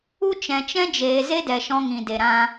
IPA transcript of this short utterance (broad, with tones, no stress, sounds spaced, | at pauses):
u˧ t͡ʃ ɛ̃˨ t͡ʃ ɛ̃˦ d͡ʒ eː˨ z e˦ d ɛ˨ ʃ ɔ̃˧ ŋ ĩ˨ d e˨ ɾ ã˧